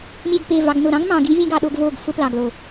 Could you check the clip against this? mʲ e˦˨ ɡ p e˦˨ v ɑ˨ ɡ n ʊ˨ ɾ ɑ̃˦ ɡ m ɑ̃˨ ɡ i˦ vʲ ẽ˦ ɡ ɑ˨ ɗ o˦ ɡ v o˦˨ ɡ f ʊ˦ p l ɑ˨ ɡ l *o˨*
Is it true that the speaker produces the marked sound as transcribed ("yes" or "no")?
yes